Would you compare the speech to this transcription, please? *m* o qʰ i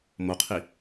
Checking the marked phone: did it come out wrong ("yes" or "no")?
no